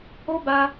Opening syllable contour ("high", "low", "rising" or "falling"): high